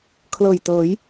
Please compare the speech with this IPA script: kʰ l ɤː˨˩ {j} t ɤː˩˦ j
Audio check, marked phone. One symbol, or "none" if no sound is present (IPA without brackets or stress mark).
j